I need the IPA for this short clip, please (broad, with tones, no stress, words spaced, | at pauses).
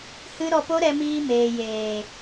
hɨ˦ ɾɔ˧po˦ɾɛ˧miː˧ meː˨jeː˨